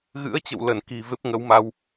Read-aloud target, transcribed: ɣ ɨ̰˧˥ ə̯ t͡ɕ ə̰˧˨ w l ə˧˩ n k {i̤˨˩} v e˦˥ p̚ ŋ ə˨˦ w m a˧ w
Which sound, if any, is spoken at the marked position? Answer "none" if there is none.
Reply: i̤˨˩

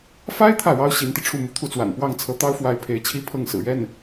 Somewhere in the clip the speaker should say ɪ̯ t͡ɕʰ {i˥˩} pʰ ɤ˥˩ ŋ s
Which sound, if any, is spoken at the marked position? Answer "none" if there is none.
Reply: i˥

